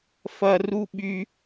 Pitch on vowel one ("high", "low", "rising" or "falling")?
high